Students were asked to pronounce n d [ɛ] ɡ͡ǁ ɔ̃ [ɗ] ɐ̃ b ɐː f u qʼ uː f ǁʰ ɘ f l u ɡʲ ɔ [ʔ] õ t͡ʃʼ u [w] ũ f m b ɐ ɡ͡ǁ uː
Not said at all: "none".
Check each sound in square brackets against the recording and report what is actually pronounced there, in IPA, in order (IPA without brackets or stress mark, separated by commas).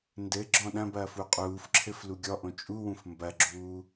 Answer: ɘ, ɗ, ʔ, w